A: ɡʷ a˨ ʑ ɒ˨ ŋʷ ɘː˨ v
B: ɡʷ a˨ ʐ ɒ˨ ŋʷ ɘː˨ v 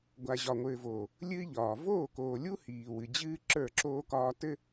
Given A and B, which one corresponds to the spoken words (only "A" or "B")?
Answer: A